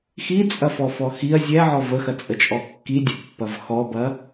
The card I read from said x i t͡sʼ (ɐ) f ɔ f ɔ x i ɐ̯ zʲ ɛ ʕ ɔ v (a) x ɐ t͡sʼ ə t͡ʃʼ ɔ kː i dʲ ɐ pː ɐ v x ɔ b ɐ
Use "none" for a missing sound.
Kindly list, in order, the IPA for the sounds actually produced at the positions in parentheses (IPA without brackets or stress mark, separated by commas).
ɐ, ə